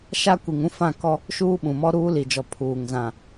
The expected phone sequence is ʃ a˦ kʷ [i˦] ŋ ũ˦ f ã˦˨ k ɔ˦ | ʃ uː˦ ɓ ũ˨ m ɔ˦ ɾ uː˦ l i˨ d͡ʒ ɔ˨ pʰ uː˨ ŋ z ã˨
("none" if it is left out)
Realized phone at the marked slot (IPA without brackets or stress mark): i˨